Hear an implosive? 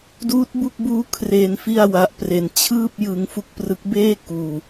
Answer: no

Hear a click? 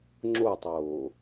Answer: yes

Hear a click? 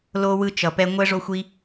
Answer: no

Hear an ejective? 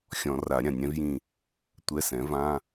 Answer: no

